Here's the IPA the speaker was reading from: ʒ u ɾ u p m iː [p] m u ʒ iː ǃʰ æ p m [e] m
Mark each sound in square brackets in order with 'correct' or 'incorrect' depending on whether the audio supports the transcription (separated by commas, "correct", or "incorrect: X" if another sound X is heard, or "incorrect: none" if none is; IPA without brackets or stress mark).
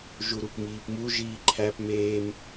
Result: correct, incorrect: eː